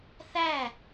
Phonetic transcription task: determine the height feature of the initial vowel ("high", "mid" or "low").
low